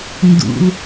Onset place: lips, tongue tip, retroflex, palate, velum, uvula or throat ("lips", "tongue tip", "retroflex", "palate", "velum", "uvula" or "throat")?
tongue tip